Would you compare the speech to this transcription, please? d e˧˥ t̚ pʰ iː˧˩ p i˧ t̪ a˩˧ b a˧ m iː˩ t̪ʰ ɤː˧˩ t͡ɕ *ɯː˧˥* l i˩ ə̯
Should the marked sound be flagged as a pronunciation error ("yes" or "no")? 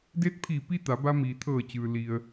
yes